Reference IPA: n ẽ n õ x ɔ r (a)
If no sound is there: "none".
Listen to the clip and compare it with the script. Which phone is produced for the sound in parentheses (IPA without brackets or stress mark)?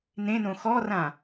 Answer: ã